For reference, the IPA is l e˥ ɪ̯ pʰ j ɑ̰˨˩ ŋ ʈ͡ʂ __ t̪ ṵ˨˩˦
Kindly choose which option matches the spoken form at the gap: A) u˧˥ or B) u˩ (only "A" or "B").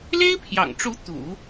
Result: A